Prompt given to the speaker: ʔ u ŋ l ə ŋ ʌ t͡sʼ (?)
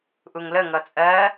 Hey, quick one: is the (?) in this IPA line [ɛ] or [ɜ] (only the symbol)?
ɜ